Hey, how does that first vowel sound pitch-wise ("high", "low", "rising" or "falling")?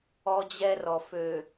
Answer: high